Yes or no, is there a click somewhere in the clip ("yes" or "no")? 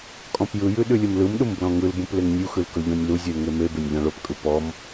no